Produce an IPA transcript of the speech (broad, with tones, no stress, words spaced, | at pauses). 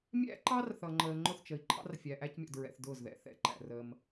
mʲæ̰˦ǃɑ˦rθʌ˨ ŋ͡ǃəː˨ŋ͡ǃʊ˦˨θt͡ʃə˨i̯ǃʰɑ̰˦r fʲæ˨ʔæ˦cmʲɔ̰˨dɹɛ̰˨θ dʊː˦˨zðɛ̰˨˦ θɛ̰˨ ǃæ̰˨rə˦m